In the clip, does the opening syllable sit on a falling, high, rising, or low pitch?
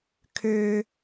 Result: high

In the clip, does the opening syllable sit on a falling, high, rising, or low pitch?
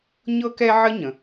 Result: high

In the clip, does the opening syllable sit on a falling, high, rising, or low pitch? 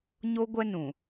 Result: high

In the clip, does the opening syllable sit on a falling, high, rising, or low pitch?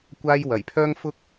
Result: high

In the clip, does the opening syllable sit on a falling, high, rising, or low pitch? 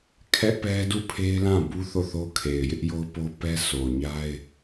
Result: high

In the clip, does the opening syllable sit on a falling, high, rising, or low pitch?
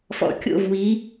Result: rising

